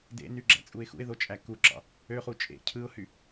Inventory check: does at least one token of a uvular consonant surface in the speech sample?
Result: yes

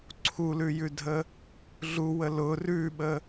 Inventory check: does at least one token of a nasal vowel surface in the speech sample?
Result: no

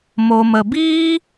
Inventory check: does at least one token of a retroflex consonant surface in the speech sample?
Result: no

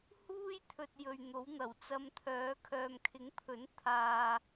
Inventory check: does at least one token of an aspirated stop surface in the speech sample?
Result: yes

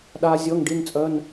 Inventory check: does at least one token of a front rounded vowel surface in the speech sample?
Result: yes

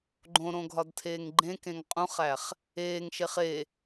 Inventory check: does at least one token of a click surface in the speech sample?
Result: yes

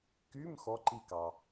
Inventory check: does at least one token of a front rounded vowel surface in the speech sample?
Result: yes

